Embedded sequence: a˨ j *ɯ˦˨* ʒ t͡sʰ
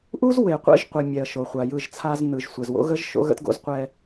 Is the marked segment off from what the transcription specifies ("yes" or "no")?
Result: no